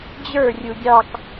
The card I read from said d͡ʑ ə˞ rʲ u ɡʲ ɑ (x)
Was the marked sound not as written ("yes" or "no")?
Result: yes